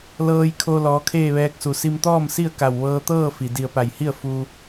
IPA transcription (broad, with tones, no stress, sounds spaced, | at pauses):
l ɤː˧ j kʰ o˧ l ɔː˩˧ kʰ eː˥˨ ʋ ɛː˧ k̚ s u˩ s i˧ m t̪ ɔː˥˨ m s i˥˨ ə̯ k a˧˩ w ʋ ɤː˧ t̪ ɤː˥˨ f i˩ d i˧˩ ə̯ p a˧˩ j h i˥˨ ə̯ f u˧